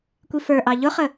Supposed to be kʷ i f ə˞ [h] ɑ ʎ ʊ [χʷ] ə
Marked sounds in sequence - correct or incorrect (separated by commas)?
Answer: incorrect, incorrect